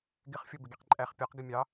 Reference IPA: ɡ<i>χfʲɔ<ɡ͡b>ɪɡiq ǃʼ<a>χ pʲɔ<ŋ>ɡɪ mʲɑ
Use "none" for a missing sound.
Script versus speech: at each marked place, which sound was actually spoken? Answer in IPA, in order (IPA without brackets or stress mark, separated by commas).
ɪ, b, æ, q